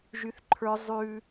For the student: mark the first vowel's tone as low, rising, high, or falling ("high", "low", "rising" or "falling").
high